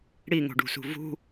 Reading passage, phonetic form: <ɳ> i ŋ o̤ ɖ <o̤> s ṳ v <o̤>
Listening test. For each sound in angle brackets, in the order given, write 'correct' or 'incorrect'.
incorrect: ɽ, incorrect: ṳ, incorrect: ṳ

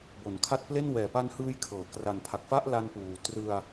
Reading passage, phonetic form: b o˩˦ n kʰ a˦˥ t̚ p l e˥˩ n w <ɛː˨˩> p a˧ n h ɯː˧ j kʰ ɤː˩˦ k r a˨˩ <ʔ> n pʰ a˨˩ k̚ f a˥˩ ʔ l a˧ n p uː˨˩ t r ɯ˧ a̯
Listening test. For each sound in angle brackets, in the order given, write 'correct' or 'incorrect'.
correct, incorrect: none

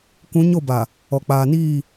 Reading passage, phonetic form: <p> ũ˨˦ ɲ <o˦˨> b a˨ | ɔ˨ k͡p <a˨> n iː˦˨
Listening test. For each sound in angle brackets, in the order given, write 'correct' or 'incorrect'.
incorrect: k, correct, incorrect: aː˨

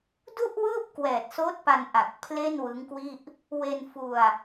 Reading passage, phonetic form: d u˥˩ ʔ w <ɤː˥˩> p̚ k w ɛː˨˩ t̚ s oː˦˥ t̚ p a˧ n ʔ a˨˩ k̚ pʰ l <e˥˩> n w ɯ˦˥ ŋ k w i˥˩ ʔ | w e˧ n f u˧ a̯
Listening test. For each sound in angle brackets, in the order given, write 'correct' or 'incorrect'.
incorrect: ɯː˥˩, correct

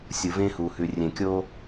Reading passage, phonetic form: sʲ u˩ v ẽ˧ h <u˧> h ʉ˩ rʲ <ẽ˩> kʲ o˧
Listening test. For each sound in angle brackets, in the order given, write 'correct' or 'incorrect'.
incorrect: u˩, correct

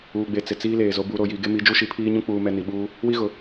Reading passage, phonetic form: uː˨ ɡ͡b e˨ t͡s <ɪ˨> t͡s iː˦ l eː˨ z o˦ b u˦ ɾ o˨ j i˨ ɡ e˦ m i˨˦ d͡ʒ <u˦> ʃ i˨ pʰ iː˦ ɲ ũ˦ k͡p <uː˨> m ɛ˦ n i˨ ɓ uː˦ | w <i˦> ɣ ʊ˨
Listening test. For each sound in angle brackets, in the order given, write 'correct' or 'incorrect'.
correct, correct, incorrect: uː˦, correct

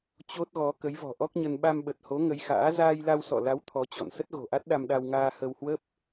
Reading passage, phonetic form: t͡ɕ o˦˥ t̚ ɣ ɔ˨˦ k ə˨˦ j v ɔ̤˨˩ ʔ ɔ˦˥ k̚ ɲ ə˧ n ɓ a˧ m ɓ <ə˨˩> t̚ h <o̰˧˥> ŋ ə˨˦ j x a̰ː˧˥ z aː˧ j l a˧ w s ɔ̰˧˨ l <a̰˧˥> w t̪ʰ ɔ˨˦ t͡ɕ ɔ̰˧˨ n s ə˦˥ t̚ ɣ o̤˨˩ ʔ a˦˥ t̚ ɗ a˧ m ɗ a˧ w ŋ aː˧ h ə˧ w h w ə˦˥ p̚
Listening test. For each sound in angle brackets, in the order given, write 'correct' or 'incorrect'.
correct, incorrect: o˨˦, incorrect: a˨˦

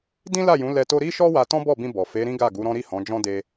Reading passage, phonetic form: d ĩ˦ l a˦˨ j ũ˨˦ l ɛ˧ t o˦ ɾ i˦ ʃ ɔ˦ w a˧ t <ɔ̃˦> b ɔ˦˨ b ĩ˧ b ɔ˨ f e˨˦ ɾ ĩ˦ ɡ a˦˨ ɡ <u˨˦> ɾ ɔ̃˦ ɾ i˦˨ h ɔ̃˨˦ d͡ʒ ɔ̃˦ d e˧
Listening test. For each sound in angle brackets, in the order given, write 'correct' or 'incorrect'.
correct, correct

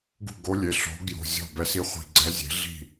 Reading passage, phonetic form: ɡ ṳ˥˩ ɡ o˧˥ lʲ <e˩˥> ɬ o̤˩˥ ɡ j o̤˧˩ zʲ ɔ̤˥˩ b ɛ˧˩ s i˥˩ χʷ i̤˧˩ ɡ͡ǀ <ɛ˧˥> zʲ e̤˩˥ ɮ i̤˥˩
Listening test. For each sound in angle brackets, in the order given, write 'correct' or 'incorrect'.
incorrect: e˩˧˩, correct

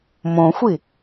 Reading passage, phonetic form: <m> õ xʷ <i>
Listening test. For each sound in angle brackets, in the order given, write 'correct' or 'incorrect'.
correct, correct

